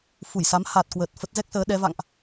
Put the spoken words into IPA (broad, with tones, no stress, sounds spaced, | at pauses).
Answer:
f u˧˩ j s a˨˦ m h a˨˩ t̚ k w ə˨˩ t̚ f ə˦˥ t̚ z ɛ˦˥ k̚ s əː˨˦ ɗ ɛ˨˦ v a̰˧˨ ŋ ʔ